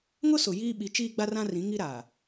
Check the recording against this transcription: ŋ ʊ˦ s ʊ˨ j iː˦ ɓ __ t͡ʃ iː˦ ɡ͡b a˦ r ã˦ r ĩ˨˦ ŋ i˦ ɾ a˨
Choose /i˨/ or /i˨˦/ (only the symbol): i˨˦